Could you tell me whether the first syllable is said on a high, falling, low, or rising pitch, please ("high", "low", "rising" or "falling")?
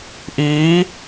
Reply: rising